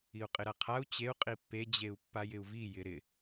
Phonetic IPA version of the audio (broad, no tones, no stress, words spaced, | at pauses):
iu̯qʼɪɾaqʰau̯ t͡ɕeu̯ qʼipːe d͡ʑeu̯pːajɪu̯vi jɪɾɪ